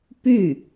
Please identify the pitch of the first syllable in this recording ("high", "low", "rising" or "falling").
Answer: falling